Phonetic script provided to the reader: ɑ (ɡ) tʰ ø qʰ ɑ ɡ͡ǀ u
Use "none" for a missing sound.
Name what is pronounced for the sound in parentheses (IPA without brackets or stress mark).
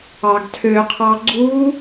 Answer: ɡ